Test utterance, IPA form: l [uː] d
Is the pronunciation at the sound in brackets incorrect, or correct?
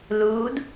correct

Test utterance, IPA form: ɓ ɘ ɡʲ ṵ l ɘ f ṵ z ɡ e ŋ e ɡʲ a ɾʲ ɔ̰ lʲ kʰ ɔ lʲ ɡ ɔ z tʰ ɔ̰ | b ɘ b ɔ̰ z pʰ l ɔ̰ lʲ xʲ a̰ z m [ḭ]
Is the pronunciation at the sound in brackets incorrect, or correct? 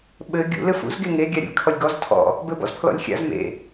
incorrect: ḛ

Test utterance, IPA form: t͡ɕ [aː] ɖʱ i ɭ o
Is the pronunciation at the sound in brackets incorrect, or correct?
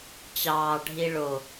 incorrect: ɑː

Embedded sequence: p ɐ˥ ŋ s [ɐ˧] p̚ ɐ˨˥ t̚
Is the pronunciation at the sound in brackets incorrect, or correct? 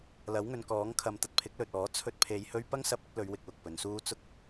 correct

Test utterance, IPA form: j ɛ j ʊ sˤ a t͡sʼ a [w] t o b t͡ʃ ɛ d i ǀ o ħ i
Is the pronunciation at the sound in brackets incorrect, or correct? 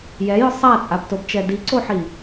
incorrect: b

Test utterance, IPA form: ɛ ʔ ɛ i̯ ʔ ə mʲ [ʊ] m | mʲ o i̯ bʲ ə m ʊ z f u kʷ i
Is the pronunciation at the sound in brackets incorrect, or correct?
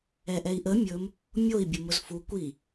incorrect: ɵ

